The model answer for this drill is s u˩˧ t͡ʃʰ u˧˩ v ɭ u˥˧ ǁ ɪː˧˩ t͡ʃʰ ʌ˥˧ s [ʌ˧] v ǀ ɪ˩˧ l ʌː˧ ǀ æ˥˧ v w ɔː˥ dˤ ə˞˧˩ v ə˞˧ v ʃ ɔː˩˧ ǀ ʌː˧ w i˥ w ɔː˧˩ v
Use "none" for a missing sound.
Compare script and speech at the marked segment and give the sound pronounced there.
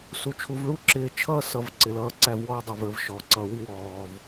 ʌ˧˩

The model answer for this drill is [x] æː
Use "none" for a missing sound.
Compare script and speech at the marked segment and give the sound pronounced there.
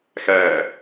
x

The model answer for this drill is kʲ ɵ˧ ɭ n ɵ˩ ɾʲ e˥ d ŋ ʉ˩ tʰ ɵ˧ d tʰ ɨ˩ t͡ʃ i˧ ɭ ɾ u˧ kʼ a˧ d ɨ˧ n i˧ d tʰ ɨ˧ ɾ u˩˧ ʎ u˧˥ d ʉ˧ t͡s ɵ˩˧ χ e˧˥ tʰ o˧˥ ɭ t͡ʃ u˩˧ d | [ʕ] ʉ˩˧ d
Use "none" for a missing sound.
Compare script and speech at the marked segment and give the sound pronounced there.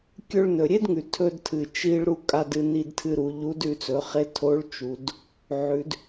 ʕ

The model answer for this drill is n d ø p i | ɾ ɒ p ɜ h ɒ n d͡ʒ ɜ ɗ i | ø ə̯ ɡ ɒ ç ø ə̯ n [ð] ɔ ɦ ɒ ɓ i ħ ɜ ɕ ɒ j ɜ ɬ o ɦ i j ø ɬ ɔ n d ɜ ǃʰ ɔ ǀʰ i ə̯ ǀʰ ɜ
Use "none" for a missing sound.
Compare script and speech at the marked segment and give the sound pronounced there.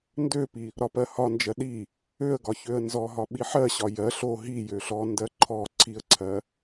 z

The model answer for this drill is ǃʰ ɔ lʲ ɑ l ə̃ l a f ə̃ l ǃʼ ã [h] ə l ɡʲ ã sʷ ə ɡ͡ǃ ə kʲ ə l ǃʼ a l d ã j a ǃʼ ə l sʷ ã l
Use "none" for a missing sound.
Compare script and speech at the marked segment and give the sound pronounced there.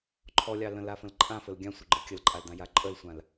f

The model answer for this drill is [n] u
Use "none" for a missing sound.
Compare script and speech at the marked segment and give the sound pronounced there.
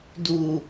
d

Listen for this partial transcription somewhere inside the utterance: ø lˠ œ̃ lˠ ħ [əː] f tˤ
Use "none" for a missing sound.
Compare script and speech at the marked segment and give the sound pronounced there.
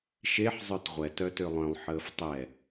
əː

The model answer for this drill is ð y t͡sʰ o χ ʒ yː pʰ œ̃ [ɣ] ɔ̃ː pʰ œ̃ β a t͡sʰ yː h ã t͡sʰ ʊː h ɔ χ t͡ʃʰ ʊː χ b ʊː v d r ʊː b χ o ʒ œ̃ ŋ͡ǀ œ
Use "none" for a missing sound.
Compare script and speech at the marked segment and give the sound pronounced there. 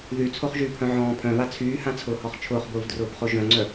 ʕ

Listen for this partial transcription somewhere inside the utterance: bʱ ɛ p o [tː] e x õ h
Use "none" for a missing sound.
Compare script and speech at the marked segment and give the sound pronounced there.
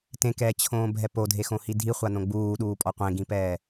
dʱ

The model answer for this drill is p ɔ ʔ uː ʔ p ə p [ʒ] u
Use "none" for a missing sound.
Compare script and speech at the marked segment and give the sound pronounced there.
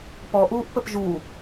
ʒ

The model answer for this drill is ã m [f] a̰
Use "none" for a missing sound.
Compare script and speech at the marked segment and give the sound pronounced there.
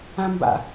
b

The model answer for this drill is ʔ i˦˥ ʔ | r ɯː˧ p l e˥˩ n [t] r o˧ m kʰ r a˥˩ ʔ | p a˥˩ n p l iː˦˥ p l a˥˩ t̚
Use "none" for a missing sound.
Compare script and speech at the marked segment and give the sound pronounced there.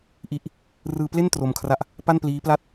t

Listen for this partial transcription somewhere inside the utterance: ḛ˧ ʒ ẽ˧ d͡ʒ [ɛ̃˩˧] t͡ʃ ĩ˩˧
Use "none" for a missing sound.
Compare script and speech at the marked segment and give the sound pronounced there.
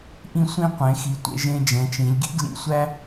ɛ̃˩˧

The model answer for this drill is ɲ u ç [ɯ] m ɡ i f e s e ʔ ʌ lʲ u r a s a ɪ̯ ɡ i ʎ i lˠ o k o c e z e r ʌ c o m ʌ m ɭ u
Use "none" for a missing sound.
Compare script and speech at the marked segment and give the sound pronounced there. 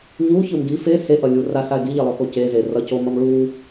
ɯ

